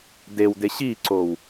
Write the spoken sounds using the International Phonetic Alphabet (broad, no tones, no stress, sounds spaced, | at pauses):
d e w d e ɕ i ǀ o w